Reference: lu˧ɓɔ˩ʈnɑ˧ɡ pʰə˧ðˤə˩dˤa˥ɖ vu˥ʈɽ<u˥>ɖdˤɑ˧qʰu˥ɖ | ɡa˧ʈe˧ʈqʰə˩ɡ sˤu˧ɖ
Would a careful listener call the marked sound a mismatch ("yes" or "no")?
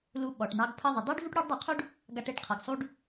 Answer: no